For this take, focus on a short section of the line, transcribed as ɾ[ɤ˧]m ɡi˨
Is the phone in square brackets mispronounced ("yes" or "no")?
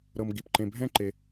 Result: no